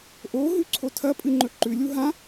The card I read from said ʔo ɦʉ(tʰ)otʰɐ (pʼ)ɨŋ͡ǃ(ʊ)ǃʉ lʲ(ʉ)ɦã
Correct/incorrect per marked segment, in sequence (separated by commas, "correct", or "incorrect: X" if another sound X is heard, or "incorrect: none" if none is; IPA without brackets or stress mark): incorrect: ǀʰ, correct, incorrect: ɵ, incorrect: u